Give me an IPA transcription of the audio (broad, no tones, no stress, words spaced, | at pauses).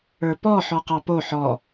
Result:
ə˞pɔ ħɔqɑpo ħɔ